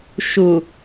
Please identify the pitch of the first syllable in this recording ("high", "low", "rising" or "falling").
low